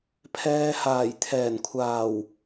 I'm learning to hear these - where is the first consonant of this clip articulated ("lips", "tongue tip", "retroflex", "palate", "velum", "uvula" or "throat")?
lips